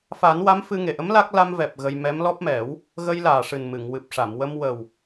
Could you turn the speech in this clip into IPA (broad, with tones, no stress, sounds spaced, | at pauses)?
f a˨˩˦ n w a˧˥ m f ɨ˧ ŋ e˨˩ ʔ ə˧˥ m l a˦˥ k̚ l a˧ m v ɛ˨˩ p̚ ɣ ə˧ j m ɛ˧˥ m l ɔ˦˥ p̚ m ɛ˨˩˦ w | ɣ ə˧ j l aː˨˩ ʂ ɨ˨˩ n m ɨ˨˩˨ ŋ w ɨ˨˩ p̚ ʂ a˨˩˨ m w ə˧ m w ə˨˩ w